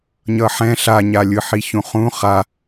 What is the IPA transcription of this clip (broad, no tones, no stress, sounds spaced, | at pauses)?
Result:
ɲ ʌ ħ ɛ̃ ɬ a ɲ a lʲ ɯ ħ i ç ũ χ ũ χ a